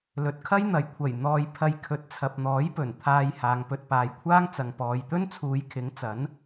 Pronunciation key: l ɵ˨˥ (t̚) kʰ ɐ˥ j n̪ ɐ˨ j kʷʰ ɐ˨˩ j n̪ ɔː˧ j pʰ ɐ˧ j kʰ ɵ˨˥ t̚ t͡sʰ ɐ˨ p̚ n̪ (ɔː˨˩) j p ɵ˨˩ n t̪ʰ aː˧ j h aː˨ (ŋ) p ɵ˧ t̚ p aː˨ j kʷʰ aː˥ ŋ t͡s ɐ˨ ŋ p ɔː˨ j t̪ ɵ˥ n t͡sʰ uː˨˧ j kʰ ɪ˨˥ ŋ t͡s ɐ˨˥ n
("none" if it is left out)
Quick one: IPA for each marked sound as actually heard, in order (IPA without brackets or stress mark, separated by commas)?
t̚, ɔː˨˥, ŋ